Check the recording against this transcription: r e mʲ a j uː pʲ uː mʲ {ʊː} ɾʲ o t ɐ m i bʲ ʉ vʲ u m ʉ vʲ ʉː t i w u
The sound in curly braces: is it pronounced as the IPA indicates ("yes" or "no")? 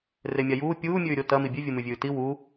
no